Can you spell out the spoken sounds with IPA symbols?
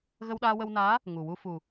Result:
ɣ ə˧ w ɗ aː˧ w ə˧ w n aː˧˥ | ŋ u˨˩ w u˧ f u˨˩

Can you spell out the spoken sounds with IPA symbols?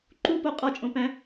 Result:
ǃ u p o qʼ ɒ t͡ʃʼ õ p æ̃

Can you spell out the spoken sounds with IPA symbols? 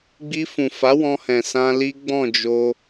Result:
ɡ͡b i˧ f ũ˨ f a˨˦ w ɔ̃˧ h ɛ̃˨ s ã˧ l i˦ ɡ͡b ɔ̃˦˨ d͡ʒ o˧

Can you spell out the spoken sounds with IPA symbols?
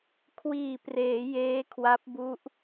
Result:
kʰ w iː˨˩ p r eː˩˦ j eː˦˥ kʰ w a˦˥ p̚ b u˦˥ ʔ

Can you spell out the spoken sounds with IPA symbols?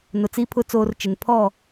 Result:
n ʊ˨ t͡s i˦ pʰ ʊ˦ t͡s oː˦ r t͡ʃ ɪ˨ n pʰ ɔ˦˨

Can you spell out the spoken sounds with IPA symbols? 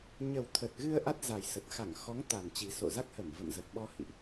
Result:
ɲ ə˨˩ w t̪ʰ ə˨˩ t̚ ɣ ɨ˧ ə̯ ʔ a˦˥ t̚ z a˨˩ j s ə˨˩ t̚ x a˧˩ ŋ x ɔ˨˦ ŋ t̪ a˨˩ n t͡ɕ i˨˩ s o̰˧˨ z a˦˥ k̚ h ə˧˩ m v ə̰˧˨ m z ə˨˩ t̚ ɓ ɔ˧ h ḭ˧˨ ʔ

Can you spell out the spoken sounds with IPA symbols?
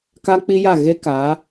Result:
k a˦ k͡p i˦ j a˦˨ ɣ e˦ k a˨˦

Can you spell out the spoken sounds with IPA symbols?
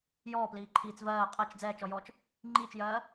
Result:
j ɔː p l iː ǃʰ iː t͡s v ɜː qʼ ɜ t͡ʃ d͡z ɛː t͡ʃ ɔ j ɔː t͡ʃ | ŋ͡ǃ iː t͡ʃ j ɜː

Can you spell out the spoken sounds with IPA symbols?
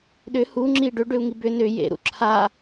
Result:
ɗ ʏ h u ŋ͡ǁ i ɖ ʏ ɖ ʏ u̯ ŋ i b ʏ n ʏ j ḛ ɾ ṵ ǁʰ a

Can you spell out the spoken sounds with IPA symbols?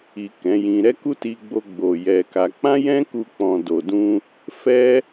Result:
i˨ k ɛ̃˨˦ j ĩ˧ ɾ ɛ˦ k u˦ t i˧ ɡ͡b o˧ ɡ͡b o˨ j ɛ˧ k a˧ k͡p ã˦ j ɛ̃˦ k u˧ k͡p ɔ̃˨ d o˨ d ũ˧ | f ɛ˦

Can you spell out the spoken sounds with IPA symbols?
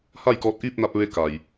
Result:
h a˥˨ j k ɔː˧ t̚ ʔ iː˥˨ p̚ n a˧ p̚ ʋ e˧˥ k a˩ j

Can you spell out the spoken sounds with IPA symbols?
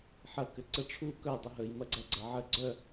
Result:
ħ ɐ k ʏ ǀ ə ʈ͡ʂʰ u k œ dˤ ʊ ɦ ə j m ɐ ɡ͡ǀ ɐ ɡ͡ǀ ɐ ʕ ə ɡ͡ǀ œ

